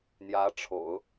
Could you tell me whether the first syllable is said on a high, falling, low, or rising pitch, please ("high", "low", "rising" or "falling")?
rising